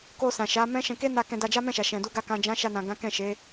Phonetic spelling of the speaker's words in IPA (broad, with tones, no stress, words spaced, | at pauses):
ko˧sã˨ʃa˨˦mɛ̃˦ ʃɛ̃˧ke˦ na˦˨ kɛ̃˧da˧ d͡ʒa˦mɛ̃˦˨ʃa˨ ʃɛ̃˨du˨˦ɡa˧ kã˨d͡ʒã˨˦ ʃa˧nã˨ɡã˨˦ kɛ̃˦˨ʃe˨˦